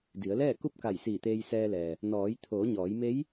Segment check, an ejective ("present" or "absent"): absent